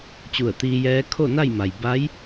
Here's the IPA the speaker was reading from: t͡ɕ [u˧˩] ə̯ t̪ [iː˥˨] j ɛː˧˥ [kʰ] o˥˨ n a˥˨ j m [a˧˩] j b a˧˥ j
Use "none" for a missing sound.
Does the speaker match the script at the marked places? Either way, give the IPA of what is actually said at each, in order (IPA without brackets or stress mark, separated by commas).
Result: u˧˩, iː˧, kʰ, a˩